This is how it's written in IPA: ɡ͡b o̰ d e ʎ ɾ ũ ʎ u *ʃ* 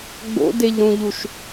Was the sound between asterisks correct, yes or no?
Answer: yes